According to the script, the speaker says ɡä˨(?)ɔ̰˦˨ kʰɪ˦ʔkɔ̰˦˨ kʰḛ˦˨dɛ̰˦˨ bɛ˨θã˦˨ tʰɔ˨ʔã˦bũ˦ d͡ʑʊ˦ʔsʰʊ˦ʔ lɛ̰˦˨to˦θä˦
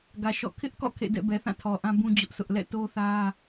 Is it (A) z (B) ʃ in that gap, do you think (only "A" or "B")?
B